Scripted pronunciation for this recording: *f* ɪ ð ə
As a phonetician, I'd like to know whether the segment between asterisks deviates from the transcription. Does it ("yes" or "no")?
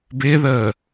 yes